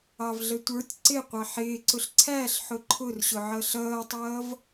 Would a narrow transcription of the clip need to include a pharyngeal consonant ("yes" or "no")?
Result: yes